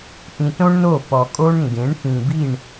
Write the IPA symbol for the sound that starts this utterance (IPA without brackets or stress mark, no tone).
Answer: ʔ